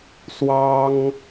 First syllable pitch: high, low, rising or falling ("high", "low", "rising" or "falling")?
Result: high